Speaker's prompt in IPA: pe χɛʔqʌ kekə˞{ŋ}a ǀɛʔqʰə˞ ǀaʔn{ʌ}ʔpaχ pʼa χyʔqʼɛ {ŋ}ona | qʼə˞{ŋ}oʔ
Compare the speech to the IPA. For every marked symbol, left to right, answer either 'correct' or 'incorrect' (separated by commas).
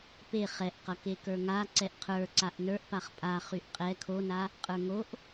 correct, incorrect, incorrect, correct